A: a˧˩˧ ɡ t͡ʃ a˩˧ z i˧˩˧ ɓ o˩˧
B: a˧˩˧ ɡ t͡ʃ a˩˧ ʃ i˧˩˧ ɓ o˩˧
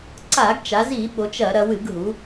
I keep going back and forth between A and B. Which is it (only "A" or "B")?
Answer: A